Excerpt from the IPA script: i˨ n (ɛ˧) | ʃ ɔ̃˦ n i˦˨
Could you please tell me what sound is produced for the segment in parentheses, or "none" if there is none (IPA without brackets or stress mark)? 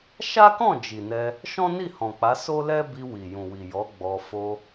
ɛ˧